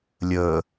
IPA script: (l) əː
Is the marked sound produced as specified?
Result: no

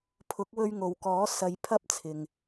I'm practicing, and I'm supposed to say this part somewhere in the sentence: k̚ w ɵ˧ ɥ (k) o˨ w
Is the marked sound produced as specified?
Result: no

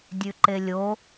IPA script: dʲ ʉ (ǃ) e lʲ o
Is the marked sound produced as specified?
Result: yes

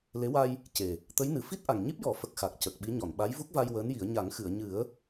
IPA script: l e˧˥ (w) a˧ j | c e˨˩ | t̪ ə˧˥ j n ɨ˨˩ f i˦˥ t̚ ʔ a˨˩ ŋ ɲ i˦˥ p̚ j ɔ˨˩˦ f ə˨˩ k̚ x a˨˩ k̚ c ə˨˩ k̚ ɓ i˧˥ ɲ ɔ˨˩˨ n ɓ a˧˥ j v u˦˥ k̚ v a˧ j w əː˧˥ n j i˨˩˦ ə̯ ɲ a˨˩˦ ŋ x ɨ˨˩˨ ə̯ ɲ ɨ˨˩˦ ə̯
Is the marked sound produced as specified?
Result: yes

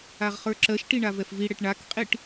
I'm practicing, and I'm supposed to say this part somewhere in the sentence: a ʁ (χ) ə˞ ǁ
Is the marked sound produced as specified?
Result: yes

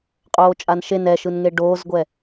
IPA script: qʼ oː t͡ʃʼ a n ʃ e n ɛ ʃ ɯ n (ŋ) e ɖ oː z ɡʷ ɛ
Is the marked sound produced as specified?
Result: yes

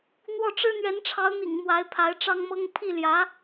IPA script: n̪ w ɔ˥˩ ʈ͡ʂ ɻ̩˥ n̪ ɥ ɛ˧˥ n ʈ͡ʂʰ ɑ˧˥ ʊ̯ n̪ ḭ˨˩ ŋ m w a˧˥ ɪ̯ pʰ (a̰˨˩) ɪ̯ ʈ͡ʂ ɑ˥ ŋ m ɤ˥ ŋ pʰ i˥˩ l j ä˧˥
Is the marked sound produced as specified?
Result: no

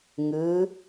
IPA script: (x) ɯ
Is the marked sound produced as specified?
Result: no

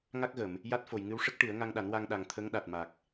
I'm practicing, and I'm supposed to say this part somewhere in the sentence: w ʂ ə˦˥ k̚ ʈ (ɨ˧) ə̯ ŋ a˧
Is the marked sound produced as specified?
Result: no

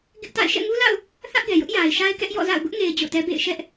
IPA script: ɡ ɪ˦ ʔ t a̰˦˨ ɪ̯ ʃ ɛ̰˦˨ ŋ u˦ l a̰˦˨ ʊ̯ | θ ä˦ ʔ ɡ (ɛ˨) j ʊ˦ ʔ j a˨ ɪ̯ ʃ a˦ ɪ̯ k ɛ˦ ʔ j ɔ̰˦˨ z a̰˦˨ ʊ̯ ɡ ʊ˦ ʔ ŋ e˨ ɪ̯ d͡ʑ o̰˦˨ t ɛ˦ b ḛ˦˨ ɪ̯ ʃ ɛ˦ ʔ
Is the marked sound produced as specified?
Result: yes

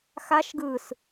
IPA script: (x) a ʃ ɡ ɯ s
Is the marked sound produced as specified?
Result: yes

